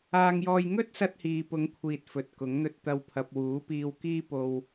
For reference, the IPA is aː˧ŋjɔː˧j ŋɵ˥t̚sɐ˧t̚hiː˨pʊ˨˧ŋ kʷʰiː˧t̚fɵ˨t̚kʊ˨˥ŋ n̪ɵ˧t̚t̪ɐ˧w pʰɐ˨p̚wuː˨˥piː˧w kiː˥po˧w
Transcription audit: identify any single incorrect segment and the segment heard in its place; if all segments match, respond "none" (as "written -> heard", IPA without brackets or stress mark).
none